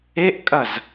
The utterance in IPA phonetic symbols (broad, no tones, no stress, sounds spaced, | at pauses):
e ʔ kʼ ɐ z